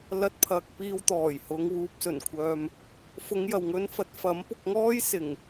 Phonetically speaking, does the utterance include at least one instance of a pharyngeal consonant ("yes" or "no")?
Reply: no